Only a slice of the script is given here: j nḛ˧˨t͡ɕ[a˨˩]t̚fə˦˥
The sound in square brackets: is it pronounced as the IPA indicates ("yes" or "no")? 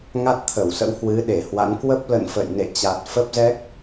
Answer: yes